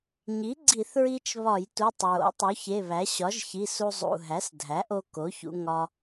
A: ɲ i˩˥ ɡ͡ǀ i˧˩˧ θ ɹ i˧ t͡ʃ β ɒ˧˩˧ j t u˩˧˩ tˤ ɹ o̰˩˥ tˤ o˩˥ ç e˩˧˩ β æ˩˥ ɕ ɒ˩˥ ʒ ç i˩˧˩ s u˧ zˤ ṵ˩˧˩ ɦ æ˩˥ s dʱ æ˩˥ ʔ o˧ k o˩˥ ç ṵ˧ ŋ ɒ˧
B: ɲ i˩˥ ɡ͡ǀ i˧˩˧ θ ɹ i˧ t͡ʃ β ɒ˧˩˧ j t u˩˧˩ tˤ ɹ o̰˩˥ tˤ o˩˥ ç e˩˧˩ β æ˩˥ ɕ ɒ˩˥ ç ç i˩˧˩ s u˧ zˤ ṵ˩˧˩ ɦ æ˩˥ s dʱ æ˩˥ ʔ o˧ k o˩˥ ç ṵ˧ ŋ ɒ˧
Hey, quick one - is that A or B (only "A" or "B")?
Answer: A